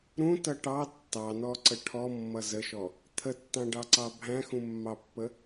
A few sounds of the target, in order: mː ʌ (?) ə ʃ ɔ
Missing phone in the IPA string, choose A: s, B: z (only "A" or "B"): B